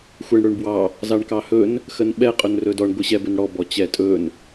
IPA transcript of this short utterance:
xʷɛɳɽɵɳbwɑ | zɑɳkɑhɵn | xənɓɛ qʼɵnrɵdɔɳ ɡʷɯɕɛbɵnɽɔ bɔt͡ɕɛtʼɵn

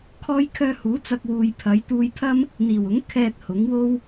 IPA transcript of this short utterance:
kʰɔː˥jkʰœː˥ huː˨˥t͡sɐ˧k̚wuː˨j pʰɐ˨˥j t̪uː˧jpʰɐ˥m | n̪iː˨˩wʊ˨˥ŋkʰɛː˧t̚ hʊ˨˥ŋwo˥w

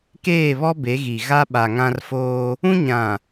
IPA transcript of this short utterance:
keː˦˨βɔ˦ be˨˦ɣi˨ ɣa˦ ɓa˨ŋã˦r foː˦ | ũ˦ɲã˨

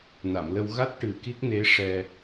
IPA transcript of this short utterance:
na˨˩˨mlə˧w ɣa˦˥t̚ ʈɨ˨˩ki˦˥k̚ne˧˥ ʂɛ˧

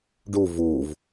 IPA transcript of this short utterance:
ɖu vuːv

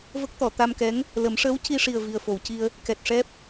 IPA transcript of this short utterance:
və˦˥k̚t̪ɔ˨˩˨ t̪a˧mkɛ˧˥ŋ | lə˨˩˦m ʂəː˧˥wci˧ʂi˨˩ə̯ vi˨˩ə̯ fo˨˩˨wci˧ə̯ | kɛ˨˩t̚ʂɛ˦˥p̚

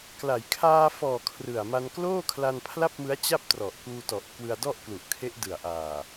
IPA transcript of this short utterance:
kla˩˦jkʰaː˧fɔː˨˩ kʰrɯ˨˩a̯ma˧n kloː˥˩kʰla˧npʰla˥˩p̚mɯ˦˥a̯ t͡ɕa˥˩p̚trɔ˨˩ʔkuː˧tɔ˨˩ʔ kwɯ˧a̯dɔ˥˩ʔklu˨˩ʔkʰe˦˥ʔ dɯ˨˩a̯ʔaː˨˩

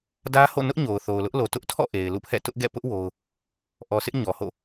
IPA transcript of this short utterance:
dä˦ho̰˦˨ nʊ˦ʔɲo˨ʊ̯ θo˨ʊ̯lʊ˦ʔlo˨ tʊ˦ʔtʰɔ̰˦˨ ʔe˨ɪ̯lṵ˦˨pʰɛ̰˦˨ tʊ˦ʔɡɛ̰˦˨ pʊ˦ʔ wo˦ʊ̯ | ʔɔ˨sʰɪ˦ʔ ɲɔ˨ho̰˦˨

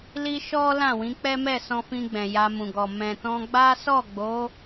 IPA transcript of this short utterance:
li˦ ʃɔ˦ lã˦˨wĩ˨˦k͡pɛ˦mɛ˦˨ sɔ̃˧fĩ˧ ɡ͡bɛ̃˨ja˧mũ˨ɡɔ˨ mɛ̃˨tɔ̃˧ɡ͡ba˦ sɔ˦˨ɡ͡bo˨˦

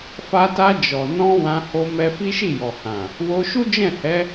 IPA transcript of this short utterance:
fa˧ta˧ d͡ʒɔ˨ nɔ̃˧ wã˧ ho˧ mɛ˧fi˦ʃi˦˨ jɔ˨hã˨ | wo˧ʃu˦ d͡ʒɛ̃˦˨hɛ˨˦

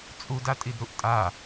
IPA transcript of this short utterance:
t͡sʼud atʼidɾuʔtʼa

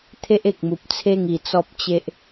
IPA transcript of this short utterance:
t̪ʰe˦ʔe˨k̚mu˨p̚t͡sʰe˥˧ŋ i˨˩t͡sɔ˦p̚t͡ɕe˦ʔ

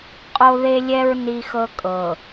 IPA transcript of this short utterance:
qʼo˦ðe˦lʲɛ˦ɹ ni˦xɤ˦ kʼɤ˨

